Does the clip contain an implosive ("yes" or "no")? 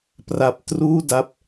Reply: no